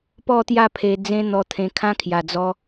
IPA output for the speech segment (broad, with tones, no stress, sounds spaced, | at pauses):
p ɔ˥˧ t̪ j a˥˧ pʰ e˧ d͡z ẽ˦ n̪ ɔ˧ t̪ʰ ẽ˧ kʰ ã˦ kʰ j a˨˩ d͡z ɔ˧